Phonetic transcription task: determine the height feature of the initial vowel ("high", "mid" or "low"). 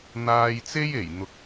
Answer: low